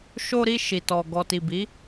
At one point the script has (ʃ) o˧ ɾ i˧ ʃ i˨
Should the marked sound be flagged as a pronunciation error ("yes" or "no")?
no